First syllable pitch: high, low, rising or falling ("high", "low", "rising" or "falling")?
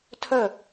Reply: falling